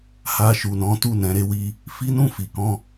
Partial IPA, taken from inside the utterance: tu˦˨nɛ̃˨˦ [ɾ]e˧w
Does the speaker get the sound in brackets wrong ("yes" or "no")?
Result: no